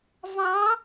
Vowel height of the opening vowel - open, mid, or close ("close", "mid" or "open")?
open